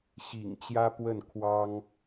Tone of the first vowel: low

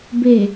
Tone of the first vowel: low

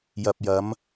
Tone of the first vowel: low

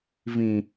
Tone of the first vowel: low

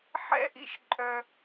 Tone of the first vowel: high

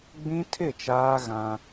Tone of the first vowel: high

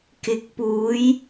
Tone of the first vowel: rising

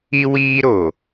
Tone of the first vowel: high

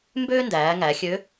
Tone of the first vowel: high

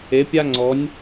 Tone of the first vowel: rising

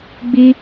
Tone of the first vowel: high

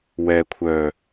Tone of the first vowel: low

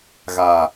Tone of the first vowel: low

